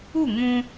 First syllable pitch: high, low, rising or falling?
falling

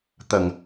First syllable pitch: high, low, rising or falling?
low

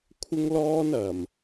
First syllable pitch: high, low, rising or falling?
high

